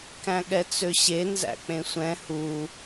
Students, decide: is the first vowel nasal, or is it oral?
nasal